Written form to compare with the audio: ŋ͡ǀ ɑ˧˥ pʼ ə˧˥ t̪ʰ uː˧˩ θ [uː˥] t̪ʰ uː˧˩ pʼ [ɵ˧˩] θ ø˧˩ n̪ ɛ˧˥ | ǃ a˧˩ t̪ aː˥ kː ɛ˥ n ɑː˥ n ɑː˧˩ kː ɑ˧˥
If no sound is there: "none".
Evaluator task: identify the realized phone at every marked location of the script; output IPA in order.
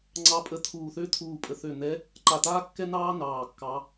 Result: øː˥, ə˧˩

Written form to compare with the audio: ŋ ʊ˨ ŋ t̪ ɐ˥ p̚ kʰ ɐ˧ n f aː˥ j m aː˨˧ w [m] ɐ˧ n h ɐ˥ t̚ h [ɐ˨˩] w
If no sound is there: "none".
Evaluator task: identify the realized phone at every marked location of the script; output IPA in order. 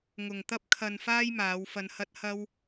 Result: f, ɐ˥

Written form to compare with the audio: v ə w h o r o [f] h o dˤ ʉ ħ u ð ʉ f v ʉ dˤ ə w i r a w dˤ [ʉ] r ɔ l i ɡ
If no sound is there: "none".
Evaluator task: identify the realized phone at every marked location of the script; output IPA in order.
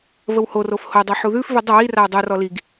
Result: f, u

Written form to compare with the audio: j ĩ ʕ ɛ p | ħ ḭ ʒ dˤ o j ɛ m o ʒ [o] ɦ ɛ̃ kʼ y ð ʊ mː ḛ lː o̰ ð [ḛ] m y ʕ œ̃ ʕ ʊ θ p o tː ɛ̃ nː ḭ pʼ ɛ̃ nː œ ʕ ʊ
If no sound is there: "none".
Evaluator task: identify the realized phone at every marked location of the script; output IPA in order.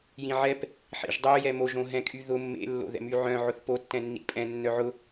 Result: õ, ɛ̰

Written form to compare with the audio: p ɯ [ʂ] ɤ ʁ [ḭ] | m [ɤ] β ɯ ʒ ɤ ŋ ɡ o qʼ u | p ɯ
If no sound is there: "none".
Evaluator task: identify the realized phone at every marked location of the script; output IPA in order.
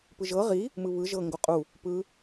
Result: ʒ, i, ɯ

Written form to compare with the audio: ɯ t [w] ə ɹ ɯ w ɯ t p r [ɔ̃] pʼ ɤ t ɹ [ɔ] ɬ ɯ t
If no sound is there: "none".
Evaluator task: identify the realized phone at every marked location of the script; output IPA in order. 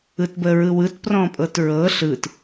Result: b, ɔ̃, ɤ

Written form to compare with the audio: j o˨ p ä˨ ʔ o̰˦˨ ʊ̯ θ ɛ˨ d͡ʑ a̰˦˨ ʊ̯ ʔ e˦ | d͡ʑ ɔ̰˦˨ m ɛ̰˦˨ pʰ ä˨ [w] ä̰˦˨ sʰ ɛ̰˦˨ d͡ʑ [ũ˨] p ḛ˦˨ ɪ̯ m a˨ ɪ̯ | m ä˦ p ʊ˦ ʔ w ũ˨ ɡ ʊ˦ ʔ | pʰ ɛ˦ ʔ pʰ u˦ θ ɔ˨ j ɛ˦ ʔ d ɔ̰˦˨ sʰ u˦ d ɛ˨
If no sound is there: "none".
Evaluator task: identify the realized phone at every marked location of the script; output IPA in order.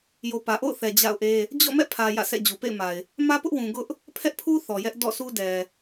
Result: j, u˨

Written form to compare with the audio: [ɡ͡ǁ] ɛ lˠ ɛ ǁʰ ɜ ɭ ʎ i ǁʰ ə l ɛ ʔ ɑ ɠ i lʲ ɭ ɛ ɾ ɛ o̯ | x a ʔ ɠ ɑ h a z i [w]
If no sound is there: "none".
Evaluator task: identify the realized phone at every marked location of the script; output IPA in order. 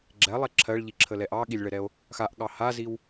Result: ɡ͡ǁ, w

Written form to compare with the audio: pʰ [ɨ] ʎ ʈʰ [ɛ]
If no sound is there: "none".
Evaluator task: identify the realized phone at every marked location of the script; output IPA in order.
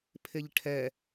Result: e, ɛ

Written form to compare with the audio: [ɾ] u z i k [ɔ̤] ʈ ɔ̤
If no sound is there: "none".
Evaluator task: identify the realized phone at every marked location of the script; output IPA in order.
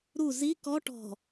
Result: ɾ, ɔ

